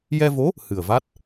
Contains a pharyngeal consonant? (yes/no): no